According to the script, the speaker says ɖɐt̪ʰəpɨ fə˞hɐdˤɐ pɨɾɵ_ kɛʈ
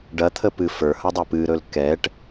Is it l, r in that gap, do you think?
l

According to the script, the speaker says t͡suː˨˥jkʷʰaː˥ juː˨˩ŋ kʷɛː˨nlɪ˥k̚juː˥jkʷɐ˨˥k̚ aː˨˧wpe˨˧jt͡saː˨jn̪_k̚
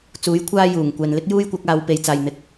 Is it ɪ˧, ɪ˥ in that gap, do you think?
ɪ˧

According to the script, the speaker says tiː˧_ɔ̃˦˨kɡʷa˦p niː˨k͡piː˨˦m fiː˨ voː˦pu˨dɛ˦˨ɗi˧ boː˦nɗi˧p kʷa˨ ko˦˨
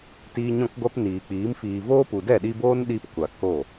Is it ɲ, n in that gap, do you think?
ɲ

